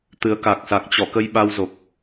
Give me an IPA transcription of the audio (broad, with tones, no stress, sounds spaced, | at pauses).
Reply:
t̪ ɨ˨˦ ə̯ k a˨˩ k̚ s a˨˩ k̚ t͡ɕ ɔ˧˩ k ə˧ j ɓ a˧ w z o˨˩ k̚